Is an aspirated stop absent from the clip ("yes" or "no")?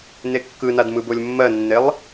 yes